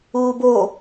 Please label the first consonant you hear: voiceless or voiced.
voiced